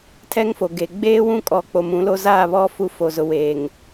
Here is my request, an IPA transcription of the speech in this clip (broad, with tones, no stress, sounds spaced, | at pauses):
tʰ ɛ˦ ŋ f o˨ ɡ e˨ ɡ͡b eː˦ w ũ˦ kʼ ɔ˨ k͡p o˨ m ũ˨˦ l o˦ z aː˦˨ β ɔ˦ f u˦˨ f o˨ z ʊ˨ w eː˨ ŋ